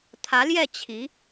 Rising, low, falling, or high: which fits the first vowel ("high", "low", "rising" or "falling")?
rising